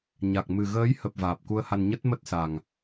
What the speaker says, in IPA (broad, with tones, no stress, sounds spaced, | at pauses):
ɲ a˨˩ k̚ m ɨ˨˩ ɣ əː˨˦ j h ə˨˩ p̚ v aː˨˩ p̚ k u˧ ə̯ h a˧ n ɲ ə˦˥ t̚ m ə˦˥ t̚ s a˨˩ ŋ